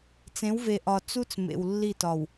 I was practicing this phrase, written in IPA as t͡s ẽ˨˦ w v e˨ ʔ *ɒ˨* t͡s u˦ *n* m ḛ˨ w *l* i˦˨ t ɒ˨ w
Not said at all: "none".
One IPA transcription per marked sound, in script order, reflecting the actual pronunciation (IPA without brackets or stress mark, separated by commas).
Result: ɒ˨, t͡s, lː